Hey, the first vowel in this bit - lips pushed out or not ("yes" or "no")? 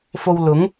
yes